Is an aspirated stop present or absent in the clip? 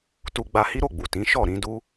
absent